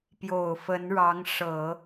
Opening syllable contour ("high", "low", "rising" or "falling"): low